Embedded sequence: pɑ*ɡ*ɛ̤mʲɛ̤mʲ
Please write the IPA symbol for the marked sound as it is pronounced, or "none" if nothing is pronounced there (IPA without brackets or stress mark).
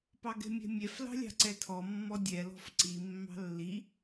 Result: ɡ